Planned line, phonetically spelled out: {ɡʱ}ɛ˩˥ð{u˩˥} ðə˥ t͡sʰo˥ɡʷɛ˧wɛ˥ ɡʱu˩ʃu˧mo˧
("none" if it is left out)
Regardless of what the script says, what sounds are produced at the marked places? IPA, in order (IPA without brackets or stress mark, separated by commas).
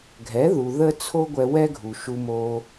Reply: ɡʱ, u˩